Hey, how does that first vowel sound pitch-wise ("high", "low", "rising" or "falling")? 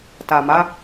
low